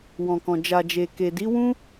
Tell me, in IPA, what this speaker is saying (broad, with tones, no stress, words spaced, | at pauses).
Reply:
wɔ̃˨kɔ̃˨ d͡ʒa˨d͡ʒe˨ke˨ di˨˦wũ˦